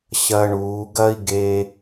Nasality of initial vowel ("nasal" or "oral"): oral